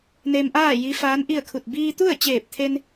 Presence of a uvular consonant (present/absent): absent